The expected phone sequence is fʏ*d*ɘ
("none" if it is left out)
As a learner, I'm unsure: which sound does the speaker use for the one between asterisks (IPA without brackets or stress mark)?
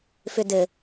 d